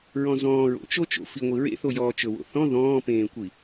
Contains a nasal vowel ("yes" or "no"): yes